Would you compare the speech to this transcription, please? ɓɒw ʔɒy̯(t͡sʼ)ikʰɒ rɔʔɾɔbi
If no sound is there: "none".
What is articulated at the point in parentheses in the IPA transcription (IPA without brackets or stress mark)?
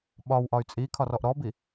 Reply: t͡sʼ